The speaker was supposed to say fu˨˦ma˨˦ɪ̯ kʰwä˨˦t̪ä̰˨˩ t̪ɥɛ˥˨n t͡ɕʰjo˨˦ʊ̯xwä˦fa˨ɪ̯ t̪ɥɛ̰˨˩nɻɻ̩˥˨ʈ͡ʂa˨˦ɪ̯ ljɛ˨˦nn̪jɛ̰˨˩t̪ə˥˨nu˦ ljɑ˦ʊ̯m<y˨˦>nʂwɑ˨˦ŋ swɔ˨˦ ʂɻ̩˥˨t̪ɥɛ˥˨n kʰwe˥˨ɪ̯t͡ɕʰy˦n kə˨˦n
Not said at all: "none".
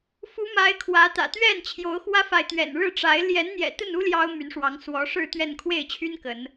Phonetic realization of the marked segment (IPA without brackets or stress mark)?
y˨˦